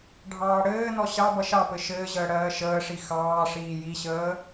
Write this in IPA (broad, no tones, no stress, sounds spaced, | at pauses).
ɖʱ ɑː ɽ ɘː n ɔ ɕ ɑ b ʌ ʃ ɑ p ɘ ʃ ɘː ʑ əː ɽ ɜː ʃ əː ʂ i x ɑː ʂ iː j i ɕ əː